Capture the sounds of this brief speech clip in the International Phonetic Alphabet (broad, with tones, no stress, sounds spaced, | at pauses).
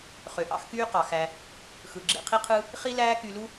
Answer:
χ ø˩ ʔ ɑ̰˥ x k yː˥ q ɑ˩ x æ˩ | x ɯ˩ ɡ͡ǁ ḛ˧ qʰ i˥ qʰ ɯ˥ | χ i˥ l æː˥ k y˧ l u˥